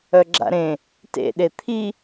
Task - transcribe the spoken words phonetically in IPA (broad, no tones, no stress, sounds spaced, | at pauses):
œ ɡ͡ǁ a̰ ɾ ẽ | t ḛ ɗ e t̪ʰ i